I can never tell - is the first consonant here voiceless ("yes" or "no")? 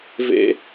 no